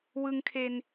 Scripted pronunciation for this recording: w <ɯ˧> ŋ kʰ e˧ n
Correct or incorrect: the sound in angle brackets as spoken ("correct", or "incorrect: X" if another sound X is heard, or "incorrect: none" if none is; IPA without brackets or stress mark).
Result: correct